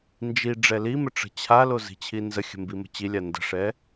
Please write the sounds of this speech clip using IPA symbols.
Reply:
nd͡ʒi ɖ͡ʐɛlimɘ ʈ͡ʂə̤t͡ɕʰalo zi̤t͡ɕʰinzəxʲə̤ mbimə̤t͡ɕilʲa ndə̤ʂɛ

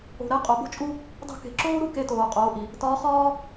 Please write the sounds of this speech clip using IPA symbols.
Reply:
o̤˩ɾɛ˧ qʼo˩˧bo̤˥t͡ʃʼu˥ | dˤṳ˧ke̤˩ǁoː˥ɾu˥ ke˧ toː˩qʼoː˩˧ʔi˩ | tɒː˧˥χɒː˥

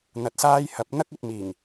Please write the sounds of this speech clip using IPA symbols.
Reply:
n̪ɐ˨t̚saː˧j hɐ˨˥p̚n̪ɐ˥k̚ ɵ˨t̚miː˨˩ŋ

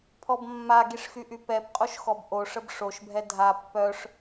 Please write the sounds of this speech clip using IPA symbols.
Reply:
pʰɔbmːaɡiʂ xyʔypɛpqʼoʃ xɔbʔoʂəb ʂoʃbʱɛ dʱa pːœʂ

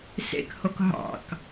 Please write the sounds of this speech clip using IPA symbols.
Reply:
sḛkhok ɦɑ̰k

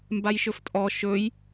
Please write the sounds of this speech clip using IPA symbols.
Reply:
mbajʃɵftʼɔ ʃɵj

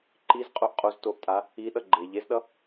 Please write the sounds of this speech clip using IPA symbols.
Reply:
ǃizqʼoʔ qʼoztoʔtʼa | iɗʌ ɡ͡ǃe ʎezɗʌ

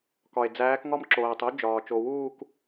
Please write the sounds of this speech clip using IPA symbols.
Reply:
kɒ˩e̯d͡zæː˨˦k ŋɒ˥mǁoː˩tˤu˥d͡ʒɒː˩ t͡ʃo˩wuː˥˧k

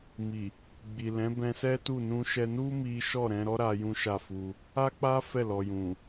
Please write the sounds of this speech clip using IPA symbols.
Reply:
mi˨ | ɡ͡bi˨lɛ̃˨˦ bɛ̃˧sɛ˦tu˦˨ nũ˧ʃɛ˧nu˦ mi˦ ʃɔ˦˨ɾɛ̃˧ɾɔ˦ ɾa˦jũ˦ʃa˦˨fu˧ | a˦k͡pa˦ fɛ˦˨lɔ˨jũ˨

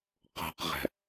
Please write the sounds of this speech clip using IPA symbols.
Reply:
qɔ̤qʁæ̤

